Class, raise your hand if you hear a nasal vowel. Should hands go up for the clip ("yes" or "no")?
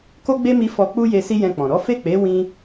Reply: yes